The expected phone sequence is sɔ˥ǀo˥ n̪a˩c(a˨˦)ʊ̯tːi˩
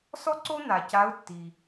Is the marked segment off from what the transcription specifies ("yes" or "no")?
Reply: no